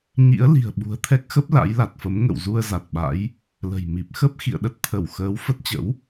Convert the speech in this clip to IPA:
ɲ ḭ˧˥ ə̯ l i̤˨˩ ə̯ ɓ ṳ˨˩ ə̯ t̪ʰ ɛ˦˥ k̚ x ə˦˥ p̚ l a̰˧˥ j l a˨˩ t̚ f ə˨˦ m ŋ ə̰˧˨ w z u˧ ə̯ z a˨˩ t̚ ɓ a̰˧˥ j | l ə̤˨˩ j m i˨˩ p̚ x ə˦˥ p̚ x ḭ˧˨ ə̯ ɗ ə˦˥ t̚ t̪ʰ ə˧˩ w x əː˨˦ w f ə˦˥ t̚ t͡ɕ ə̰˧˥ w

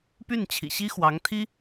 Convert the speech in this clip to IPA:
p y˥˩ n t͡ɕʰ ḭ˨˩ ɕ i˥ x w ɑ˧˥ ŋ t̪ʰ i˥

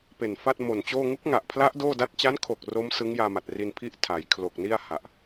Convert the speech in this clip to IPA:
p e˨˩ n f a˥˩ t̚ m o˨˩ n t͡ɕ oː˥˩ ŋ u˦˥ k̚ ŋ a˨˩ ʔ pʰ l a˦˥ ʔ d oː˥˩ d a˥˩ t̚ t͡ɕ a˦˥ n kʰ o˨˩ k̚ r o˦˥ m s ɯ˦˥ ŋ j aː˧ m a˨˩ t̚ r i˧ n pʰ i˥˩ ʔ tʰ a˩˦ j kʰ l o˨˩ k̚ n i˥˩ a̯ h a˨˩ ʔ

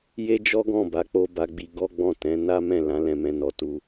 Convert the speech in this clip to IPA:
j e˦ d͡ʒ ɔ˦ ɡ ɔ̃˦˨ b a˨˦ k͡p o˧ b a˧ ɡ͡b i˧ ɡ ɔ˦ ɡ͡b ɔ̃˦˨ t ɛ̃˨˦ n a˦ m ɛ̃˦˨ l ã˨˦ l ɛ̃˧ m ɛ̃˦ n ɔ˧ t u˦

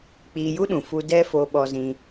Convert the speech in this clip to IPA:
k͡p iː˧ j u˦ ɗ ũ˨ f u˧ d ɛ˦ f o˧ ɓ ɔ˧ z ĩ˧

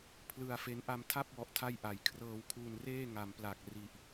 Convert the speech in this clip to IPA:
pʰ l ɯ˧ a̯ f e˦˥ n ʔ a˧ m tʰ a˥˩ p̚ w ɔ˨˩ ʔ tʰ a˥˩ j ʔ a˨˩ j kʰ r ɤː˧ w kʰ uː˧ n r eː˥˩ ŋ a˩˦ m p l a˨˩ k̚ r i˨˩ ʔ

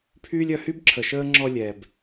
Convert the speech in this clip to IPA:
pʰ yː˦ lʲ œ˧ h y˦ b ǁʰ ə˨ ʃ əː˦ ŋ͡ǁ ɔ˧ lʲ ɛ˨ b

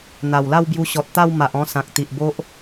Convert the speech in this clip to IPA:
n̪ a˨˩ w l a˥˧ w b j u˧ ɕ ɔ˨ t̚ t̪ a˥˧ w m a˨ ʔ ɔ̃˧ s ã˨ k̚ t̪ i˨ ʔ b o˦ ʔ

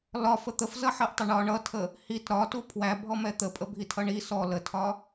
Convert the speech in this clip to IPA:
l ɒ f ə t̪ ə f z ʌ ħ ɜ ʔ tˤ ɪ ɳ ɒ ɳ ʌ tʰ ə | h i t ɾ ɒ t u pʰ w æ bʱ ɔ m ɛ t̪ ə pʼ ə bʱ i tʰ ʌ ɳ i s ɔ l ə tʰ ɒ

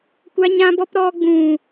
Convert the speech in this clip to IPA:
kʷ a˦ ɲ ã˦ b ɔ˦ p ɾ ɔ˧ ɡ͡b ũ˨

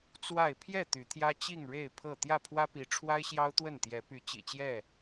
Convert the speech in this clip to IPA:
t͡s w a˥˨ ɪ̯ pʰ j ɛ˥˨ t̪ y˨˦ t̪ʰ j ä˦ t͡ɕ i˥˨ ŋ ɻ e˥˨ ɪ̯ pʰ ɤ˥˨ t̪ j ä˥˨ pʰ w ä˦ p i˨˦ ʈ͡ʂʰ w a˦ ɪ̯ ɕ j ɑ˦ ʊ̯ t̪ w ə˥˨ n t̪ j ɛ˨˦ p y˨˦ t͡ɕ ḭ˨˩ t͡ɕ j ɛ˥˨

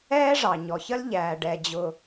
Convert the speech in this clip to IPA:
ɛː˥ ʐ ɑ˩ ɲ ɔ˩ ç ə˥ l ʎ æː˩ ɖ ɛ˩ d͡ʑ ʊ˩

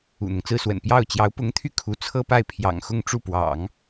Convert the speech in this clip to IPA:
ṵ˨˩ n̪ ʊ˦ ŋ t͡s ɹ̩˥ s w ə̰˨˩ n p j ɑ˥˩ ʊ̯ t͡ɕ j ɑ˧˥ ʊ̯ p ʊ˧˥ ŋ t̪ʰ y˥˩ kʰ u˧˥ t͡sʰ ɤ˥ p a˥˩ ɪ̯ pʰ j ɑ̰˨˩ ŋ x ʊ˥˧ ŋ ʈ͡ʂ u˥˩ p w ɑ̰˨˩˦ ŋ

